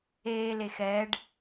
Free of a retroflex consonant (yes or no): no